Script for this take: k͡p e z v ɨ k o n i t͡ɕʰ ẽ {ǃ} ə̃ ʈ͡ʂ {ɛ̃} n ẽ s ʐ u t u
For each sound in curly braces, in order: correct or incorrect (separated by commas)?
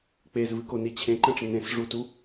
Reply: correct, incorrect